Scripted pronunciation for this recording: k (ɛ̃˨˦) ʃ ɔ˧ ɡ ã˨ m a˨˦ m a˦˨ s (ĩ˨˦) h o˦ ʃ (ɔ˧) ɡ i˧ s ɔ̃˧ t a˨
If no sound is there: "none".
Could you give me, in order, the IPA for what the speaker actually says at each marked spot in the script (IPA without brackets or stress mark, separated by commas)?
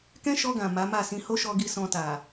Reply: ɛ̃˦, ĩ˨˦, ɔ˧